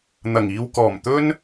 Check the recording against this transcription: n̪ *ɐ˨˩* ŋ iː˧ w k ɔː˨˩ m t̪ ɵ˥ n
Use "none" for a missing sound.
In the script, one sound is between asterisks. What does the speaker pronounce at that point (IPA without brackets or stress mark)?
ɐ˨˩